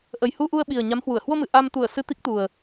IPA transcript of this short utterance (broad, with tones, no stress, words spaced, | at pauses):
ʔə˨˩jhu˧ʔu˧ə̯ɓi˨˩ə̯ ɲa˨˦mhwu˧˩ə̯ hwo˧mɨ˨˩ ʔa˧m t̪u˧˩ə̯ sɨ˧t̪i˦˥k̚t̪u˨˩ə̯